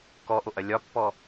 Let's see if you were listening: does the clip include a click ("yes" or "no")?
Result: no